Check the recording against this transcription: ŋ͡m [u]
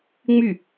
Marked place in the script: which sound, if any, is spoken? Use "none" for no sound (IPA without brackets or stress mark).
y